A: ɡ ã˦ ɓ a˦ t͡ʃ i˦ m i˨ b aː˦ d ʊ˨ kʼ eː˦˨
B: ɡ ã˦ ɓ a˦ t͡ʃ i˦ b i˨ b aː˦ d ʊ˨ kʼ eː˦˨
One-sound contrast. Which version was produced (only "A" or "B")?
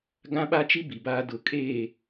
B